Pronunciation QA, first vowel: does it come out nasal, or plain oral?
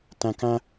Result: nasal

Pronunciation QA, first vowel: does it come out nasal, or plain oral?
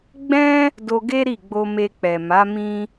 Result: nasal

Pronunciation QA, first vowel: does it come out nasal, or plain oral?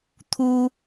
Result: oral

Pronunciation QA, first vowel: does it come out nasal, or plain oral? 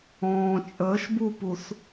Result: nasal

